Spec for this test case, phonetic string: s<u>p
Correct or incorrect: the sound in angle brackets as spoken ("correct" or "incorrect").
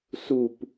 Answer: correct